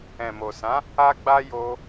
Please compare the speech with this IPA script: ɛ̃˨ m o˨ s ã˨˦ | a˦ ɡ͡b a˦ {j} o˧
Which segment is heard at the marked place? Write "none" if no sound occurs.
j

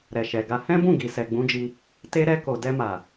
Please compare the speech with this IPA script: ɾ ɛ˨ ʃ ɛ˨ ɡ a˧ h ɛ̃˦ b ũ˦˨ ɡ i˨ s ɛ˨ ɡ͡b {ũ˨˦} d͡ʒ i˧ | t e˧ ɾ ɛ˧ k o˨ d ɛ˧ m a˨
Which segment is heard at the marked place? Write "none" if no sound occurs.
ũ˨˦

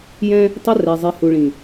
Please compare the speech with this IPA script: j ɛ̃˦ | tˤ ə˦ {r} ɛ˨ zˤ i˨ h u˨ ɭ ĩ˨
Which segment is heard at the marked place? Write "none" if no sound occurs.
r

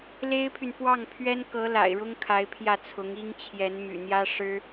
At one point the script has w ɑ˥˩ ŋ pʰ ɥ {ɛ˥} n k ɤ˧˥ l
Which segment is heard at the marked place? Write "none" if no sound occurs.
ɛ˥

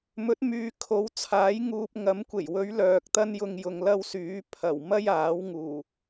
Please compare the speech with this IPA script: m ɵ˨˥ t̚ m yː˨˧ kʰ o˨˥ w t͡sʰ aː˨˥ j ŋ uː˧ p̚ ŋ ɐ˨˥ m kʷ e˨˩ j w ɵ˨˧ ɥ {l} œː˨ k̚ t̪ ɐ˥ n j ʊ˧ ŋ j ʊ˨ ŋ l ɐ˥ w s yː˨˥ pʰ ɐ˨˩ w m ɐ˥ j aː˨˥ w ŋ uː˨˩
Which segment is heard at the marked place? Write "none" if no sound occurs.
l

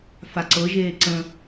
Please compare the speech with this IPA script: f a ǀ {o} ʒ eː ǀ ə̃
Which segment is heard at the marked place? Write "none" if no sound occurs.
ɤ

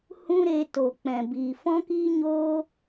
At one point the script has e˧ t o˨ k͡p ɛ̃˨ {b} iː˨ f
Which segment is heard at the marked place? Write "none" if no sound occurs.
b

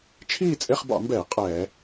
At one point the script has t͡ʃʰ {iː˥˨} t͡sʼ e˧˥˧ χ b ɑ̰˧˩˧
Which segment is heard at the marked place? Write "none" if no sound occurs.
iː˥˨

